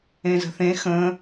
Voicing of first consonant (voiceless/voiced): voiced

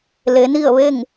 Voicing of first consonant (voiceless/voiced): voiced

